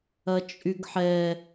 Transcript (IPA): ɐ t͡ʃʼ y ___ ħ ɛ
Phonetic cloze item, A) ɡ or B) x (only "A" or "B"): A